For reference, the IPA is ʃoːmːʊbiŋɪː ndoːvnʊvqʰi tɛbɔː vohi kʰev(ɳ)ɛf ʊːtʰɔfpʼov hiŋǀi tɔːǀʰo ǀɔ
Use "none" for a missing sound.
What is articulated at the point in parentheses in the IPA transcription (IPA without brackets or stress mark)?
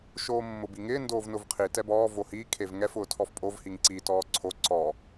ŋ